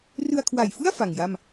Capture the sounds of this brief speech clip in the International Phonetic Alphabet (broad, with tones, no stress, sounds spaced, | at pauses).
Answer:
r ɯ˧ a̯ kʰ w a˨˩ j f ɯ˥˩ a̯ f a˨˩ ŋ j a˥˩ m